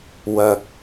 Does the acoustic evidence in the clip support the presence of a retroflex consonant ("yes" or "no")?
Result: no